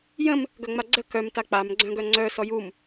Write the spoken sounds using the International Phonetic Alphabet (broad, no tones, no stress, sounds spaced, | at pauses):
j ə̃ m | ɡ œ ŋ͡m a ɡ͡ǀ ə k œ m t a k͡p a m ɡ͡ǀ œ̃ ɡ œ ŋ͡ǀ œ s ɔ j u m